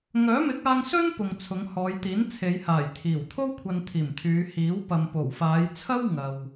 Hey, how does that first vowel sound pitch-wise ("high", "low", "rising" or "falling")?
rising